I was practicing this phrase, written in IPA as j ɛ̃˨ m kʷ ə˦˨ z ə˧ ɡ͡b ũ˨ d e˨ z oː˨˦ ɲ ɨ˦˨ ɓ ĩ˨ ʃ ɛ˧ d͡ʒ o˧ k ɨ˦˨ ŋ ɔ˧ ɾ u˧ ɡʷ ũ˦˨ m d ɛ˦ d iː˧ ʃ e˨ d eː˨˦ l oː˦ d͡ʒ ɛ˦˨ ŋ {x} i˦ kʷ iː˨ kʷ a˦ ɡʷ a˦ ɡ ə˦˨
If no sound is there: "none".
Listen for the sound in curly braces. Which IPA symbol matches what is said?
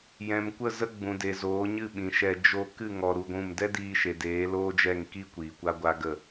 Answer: k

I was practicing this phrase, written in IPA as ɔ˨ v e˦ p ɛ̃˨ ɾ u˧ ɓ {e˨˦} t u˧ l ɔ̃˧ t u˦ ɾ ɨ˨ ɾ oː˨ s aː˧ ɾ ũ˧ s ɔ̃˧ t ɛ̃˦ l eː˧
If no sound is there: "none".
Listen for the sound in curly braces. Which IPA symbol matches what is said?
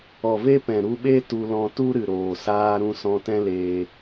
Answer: e˦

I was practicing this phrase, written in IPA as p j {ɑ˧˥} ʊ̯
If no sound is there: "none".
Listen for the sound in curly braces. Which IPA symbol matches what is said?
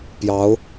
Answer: ɑ˧˥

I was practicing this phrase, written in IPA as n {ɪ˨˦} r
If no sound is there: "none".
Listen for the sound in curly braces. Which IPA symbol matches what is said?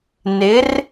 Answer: ɪ˨˦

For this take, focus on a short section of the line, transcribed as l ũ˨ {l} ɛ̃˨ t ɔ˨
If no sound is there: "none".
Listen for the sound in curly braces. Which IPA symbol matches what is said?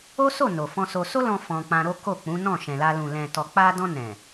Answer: l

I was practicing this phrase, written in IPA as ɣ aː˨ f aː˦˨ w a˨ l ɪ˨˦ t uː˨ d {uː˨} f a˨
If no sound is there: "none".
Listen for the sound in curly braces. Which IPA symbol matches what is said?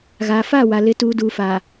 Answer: uː˨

